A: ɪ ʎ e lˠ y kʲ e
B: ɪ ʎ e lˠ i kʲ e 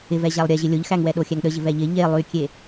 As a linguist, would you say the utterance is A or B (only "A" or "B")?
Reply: A